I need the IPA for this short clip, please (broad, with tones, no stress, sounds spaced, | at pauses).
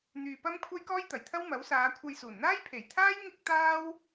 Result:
n̪ yː˧ p ɐ˥ m kʷʰ ɐ˥ j k ɔː˥ j t̪ ɐ˨˩ j t̪ʰ ɐ˥ w m ɐ˨˥ w s aː˨˧ kʷʰ ɐ˧ j s uː˨˩ n n̪ aː˥ j pʰ e˨˩ j t̪ʰ aː˥ j ŋ ɪ˥ k̚ t̪ aː˥ w